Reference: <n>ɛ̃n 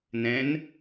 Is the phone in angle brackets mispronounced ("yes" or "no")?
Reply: no